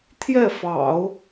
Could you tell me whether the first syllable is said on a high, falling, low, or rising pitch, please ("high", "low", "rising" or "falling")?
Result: falling